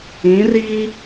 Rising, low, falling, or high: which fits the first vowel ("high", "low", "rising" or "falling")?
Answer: rising